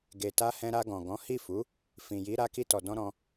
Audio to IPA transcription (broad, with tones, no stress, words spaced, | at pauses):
ɡe˨ta˧ hɛ̃˧ɾa˧ɡɔ̃˨ ɡɔ̃˨˦hi˦˨fu˨˦ | fĩ˨ji˨˦ ɾa˧ki˧tɔ˨dɔ̃˧ ɾɔ̃˧